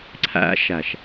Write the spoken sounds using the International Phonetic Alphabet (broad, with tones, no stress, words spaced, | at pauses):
ǀʰæ̰˦ʃæ˨ʃ